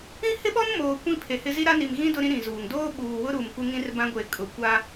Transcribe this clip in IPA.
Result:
ĩ˦ h ɪ˦ ɓ ɔ˦ n m oː˨ kʷ ĩ˦ pʰ e˨ h ɪ˦ z i˦ ɾ a˦ n i˨ m ɣ ĩ˦ d ʊ˦ ɾ ĩ˦ ɾ ĩ˨ z uː˨ ŋ d oː˦ ɓ uː˨ w ʊ˦ ɾ uː˨ m kʷ ɪ˦ ŋ ĩ˦ r b ã˦ ɡʷ e˨ kʼ ʊ˨ kʷ a˦

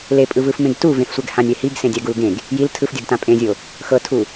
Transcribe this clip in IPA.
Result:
l e pʼ ɯ v ɯ f m ẽ ɡ t u v ẽ f sʷ ɛ ɡ h ã nʲ ɛ h i ɡ s ẽ dʲ a ɡ u l ɡ ẽ ɡ | j i l tʰ ɯ f dʲ ɤ ɡ t ã pʼ ẽ zʲ o | x ɤ tʰ u

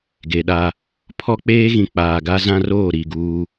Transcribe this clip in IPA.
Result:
ɡ e˨ ɗ a˦ | pʰ ɔ˦ k͡p eː˦ ɣ ĩ˨ k͡p aː˨ ɡ a˦ z ã˦ r oː˦˨ ɾ i˦˨ ɡ uː˦

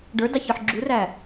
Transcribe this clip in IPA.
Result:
ɖ ə˞ d ɑ ç ə˞ ħ ɡ͡ǁ u r æ

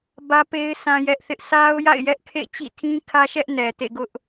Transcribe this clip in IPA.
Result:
b ä˦ p e˦ ɪ̯ s ã˦ j ɛ˦ ʔ θ ɪ˦ ʔ sʰ a˦ ʊ̯ j a̰˦˨ ɪ̯ j ɛ˦ ʔ kʰ ḛ˦˨ t͡ɕ ḭ˦˨ tʰ ĩ˦ kʰ ä˦ ʃ ɛ˦ ʔ n ɛ˨ t ḛ˦˨ ɡ ʊ˦ ʔ

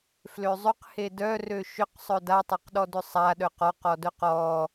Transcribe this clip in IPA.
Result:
f l ø zˤ ʏ q h e d œ r ø ʃ ʏ q sˤ œ d a tˤ a q ɗ ɔ d ʏ sˤ a ɗ œ q ɔ q ɔ d œ q ɔ

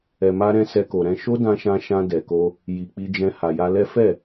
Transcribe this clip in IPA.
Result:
ɛ˨ m a˧ ɾ ɛ̃˧ s ɛ˧ k o˨ ɾ ɛ̃˧ ʃ o˦ d ã˧ ʃ ã˧ ʃ ã˧ d ɛ˨ k o˧ | j i˨ k͡p i˧ d͡ʒ ɛ̃˧ h a˨ j a˧ l ɛ˦ f ɛ˦˨

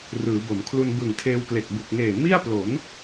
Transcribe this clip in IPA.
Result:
r ɯː˩˦ b o˩˦ m kʰ l u˧ n b ɯ˨˩ ŋ tʰ eː˧ w k l e˨˩ k̚ b u˨˩ k̚ ŋ eː˨˩ m i˥˩ a̯ p l o˩˦ n

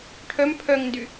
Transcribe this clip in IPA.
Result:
ʈʰ œ m pʰ œ ŋ n d y

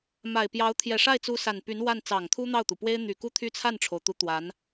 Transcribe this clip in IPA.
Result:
m a˨˩ ɪ̯ p j ɑ˧˥ ʊ̯ t̪ʰ j ɛ˨˩ ʂ a˥˩ ɪ̯ t͡s u˧˥ s a˨˩ n p y˧˥ n w a˥˩ n t͡s ɑ˨˩ ŋ t̪ʰ u˥ n̪ ɑ˥˩ ʊ̯ t̪ u˩ p w e˥ ɪ̯ n̪ y˨˩ k u˥ t̪ʰ y˥˧ t͡sʰ a˥˩ n ʈ͡ʂʰ o˩ ʊ̯ t̪ u˧˥ t̪ w a˧˥ n

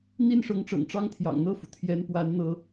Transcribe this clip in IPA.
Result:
n̪ i˥˩ n ʂ ɤ˧˥ ŋ ʈ͡ʂ ɤ̰˨˩ ŋ ʈ͡ʂ ɑ˥ ŋ t̪ʰ j ɑ̰˨˩ ŋ n̪ ɤ˥˩ f u˩ t̪ʰ j ɛ˧˥ n p w a˧˥ n n̪ ɤ˥

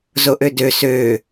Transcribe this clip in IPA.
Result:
z o ʔ ø d ø s øː

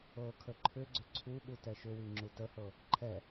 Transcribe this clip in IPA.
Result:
ɤ kʰ ə ǃʰ ʏ ɡ͡ǀ ʏ ǀʰ u ɠ u t ɛ ʃ ʏ w i ŋ͡ǁ u t ə h ɤ | ǃʰ ɛ

